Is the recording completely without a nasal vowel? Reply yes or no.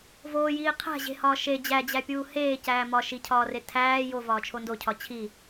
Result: yes